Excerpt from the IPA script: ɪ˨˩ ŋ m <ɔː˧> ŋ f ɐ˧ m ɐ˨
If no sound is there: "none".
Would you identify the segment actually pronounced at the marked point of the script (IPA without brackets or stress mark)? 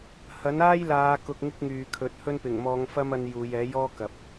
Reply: ɔː˨˧